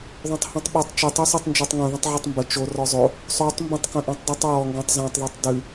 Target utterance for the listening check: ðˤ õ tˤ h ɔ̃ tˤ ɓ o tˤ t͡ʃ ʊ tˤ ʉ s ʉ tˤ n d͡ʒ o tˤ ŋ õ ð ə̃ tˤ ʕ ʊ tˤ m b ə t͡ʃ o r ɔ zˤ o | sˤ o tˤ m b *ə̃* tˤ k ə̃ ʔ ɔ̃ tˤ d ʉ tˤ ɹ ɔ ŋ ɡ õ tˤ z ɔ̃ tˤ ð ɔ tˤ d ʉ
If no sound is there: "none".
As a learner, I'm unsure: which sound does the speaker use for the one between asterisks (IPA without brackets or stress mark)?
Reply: ə̃